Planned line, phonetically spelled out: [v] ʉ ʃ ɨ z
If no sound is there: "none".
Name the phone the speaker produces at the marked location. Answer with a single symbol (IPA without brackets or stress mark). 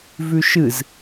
v